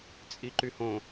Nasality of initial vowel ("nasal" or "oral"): oral